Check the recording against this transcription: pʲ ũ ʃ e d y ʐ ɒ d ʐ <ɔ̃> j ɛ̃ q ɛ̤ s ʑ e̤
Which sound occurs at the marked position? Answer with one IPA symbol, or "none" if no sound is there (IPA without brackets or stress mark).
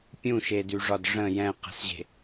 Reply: ə̃